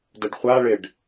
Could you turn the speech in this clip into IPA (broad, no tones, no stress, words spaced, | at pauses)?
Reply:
dəɖχʷaɭɪɖ